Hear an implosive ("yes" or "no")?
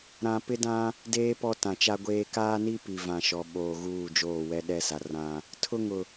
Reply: yes